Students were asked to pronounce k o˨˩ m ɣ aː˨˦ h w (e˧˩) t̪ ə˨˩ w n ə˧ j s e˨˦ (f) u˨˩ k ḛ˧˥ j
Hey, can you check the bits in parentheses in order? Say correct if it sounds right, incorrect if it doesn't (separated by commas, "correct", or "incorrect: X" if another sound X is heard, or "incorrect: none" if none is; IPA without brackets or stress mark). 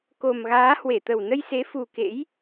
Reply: correct, correct